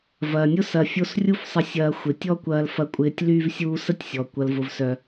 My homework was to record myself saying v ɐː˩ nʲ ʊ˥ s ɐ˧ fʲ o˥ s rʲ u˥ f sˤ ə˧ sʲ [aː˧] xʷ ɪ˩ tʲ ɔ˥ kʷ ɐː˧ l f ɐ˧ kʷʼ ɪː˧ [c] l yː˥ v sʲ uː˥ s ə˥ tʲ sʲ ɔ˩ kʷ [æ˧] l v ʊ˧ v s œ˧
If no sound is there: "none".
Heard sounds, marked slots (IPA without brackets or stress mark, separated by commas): ɐː˧, tʲ, ɐ˧